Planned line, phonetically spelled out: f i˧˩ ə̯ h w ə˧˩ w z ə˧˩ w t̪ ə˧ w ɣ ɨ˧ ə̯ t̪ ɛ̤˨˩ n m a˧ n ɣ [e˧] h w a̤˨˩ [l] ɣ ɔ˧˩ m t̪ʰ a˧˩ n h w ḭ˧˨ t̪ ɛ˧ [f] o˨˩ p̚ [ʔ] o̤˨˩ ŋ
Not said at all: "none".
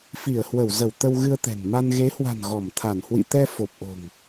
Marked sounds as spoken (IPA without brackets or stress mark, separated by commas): e˨˦, n, f, ʔ